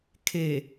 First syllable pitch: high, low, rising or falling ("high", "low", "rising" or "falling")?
low